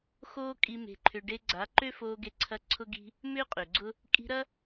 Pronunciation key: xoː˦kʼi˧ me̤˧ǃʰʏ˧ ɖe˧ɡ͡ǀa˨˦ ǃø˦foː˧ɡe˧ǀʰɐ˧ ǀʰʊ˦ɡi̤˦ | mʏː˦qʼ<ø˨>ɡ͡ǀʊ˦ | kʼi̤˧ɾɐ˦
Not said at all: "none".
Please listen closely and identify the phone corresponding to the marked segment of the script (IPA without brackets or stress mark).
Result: ø˨